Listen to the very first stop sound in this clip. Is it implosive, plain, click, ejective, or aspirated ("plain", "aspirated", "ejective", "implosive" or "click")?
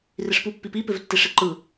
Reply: plain